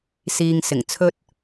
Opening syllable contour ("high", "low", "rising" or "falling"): low